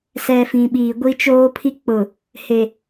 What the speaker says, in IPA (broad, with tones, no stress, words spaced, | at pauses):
sɛ˨ fĩ˨ɓiː˨ ɡʷi˦t͡ʃoː˦pʰi˦ k͡pʊ˨ | he˨